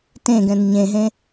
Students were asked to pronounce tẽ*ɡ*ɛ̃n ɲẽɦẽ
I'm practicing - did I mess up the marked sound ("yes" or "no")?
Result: no